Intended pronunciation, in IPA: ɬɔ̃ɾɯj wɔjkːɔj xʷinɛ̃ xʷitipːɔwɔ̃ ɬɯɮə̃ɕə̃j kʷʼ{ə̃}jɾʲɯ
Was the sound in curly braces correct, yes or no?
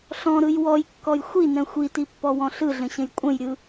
yes